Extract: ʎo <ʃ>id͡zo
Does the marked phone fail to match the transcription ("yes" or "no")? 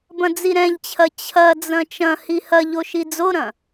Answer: no